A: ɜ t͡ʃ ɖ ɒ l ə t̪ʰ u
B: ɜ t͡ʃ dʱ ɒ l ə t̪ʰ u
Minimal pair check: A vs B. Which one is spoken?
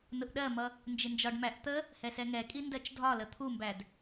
B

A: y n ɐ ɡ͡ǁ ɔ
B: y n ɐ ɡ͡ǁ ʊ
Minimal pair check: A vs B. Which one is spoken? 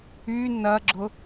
B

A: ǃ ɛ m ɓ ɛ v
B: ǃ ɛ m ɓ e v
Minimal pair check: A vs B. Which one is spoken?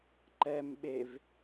B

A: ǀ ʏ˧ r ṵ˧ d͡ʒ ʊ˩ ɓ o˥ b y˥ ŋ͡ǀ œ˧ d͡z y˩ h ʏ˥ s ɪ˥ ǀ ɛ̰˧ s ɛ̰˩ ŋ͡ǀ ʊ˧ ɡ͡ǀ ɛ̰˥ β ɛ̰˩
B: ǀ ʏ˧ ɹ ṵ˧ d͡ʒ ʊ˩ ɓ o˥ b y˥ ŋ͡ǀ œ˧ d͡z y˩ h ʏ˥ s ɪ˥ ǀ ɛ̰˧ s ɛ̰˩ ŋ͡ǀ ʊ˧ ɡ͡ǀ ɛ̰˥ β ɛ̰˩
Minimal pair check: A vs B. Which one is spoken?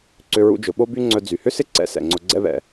B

